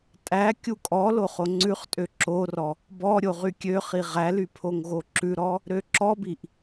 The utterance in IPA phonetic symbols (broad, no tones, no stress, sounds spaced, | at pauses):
tʼ æ kʲ u kʼ ɔ l o χ o ŋ͡ǀ ʉ χ tʼ ø ǁ o r ɔ | b ɔ ɾʲ o ʁ y kʲ ø χ i ʁ æ l y pʰ o ŋ ɣ o ǁ ʉ ɾ ɔ | ɾ ø ǁ ɔ b i ʔ